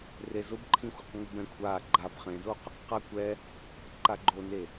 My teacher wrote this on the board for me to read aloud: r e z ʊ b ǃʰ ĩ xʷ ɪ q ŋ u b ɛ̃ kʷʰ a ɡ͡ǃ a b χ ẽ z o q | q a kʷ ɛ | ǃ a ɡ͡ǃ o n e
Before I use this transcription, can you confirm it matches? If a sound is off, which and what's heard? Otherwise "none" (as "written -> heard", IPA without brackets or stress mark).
none